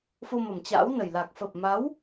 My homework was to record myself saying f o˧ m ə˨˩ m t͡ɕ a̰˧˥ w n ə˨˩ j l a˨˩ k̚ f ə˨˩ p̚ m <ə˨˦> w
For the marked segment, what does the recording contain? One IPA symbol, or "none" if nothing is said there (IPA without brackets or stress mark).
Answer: a˨˦